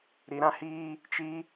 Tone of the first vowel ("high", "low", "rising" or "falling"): low